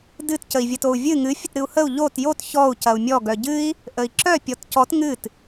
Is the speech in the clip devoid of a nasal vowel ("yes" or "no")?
yes